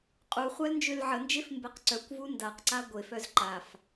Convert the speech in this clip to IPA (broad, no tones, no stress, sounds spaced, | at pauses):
qʼ u χʷ a l n d͡ʒ ø l ʕ ə n d͡ʒ e f m b e q ǀ œ kʷ v u n d a q ǀ a ɡʷ e f œ z ǃ a f